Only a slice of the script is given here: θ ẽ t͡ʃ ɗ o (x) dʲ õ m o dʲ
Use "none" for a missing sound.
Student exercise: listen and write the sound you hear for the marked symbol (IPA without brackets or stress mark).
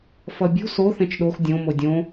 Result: x